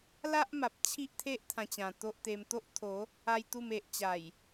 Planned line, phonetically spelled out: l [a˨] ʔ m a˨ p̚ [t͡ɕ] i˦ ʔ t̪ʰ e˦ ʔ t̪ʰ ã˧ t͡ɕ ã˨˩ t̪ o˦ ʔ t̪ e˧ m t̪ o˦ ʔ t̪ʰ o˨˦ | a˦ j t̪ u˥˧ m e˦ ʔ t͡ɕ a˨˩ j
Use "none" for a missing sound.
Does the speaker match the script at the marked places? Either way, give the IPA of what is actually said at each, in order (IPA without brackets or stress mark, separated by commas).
a˦, t͡ɕʰ